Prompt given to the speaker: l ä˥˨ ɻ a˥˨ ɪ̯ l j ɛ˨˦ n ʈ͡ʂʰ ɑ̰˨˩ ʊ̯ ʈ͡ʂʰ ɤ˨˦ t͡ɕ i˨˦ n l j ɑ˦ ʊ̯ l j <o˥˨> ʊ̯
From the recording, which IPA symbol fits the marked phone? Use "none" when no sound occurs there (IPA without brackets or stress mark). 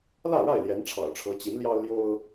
o˦